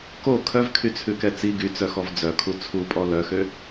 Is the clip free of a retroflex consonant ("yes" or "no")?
yes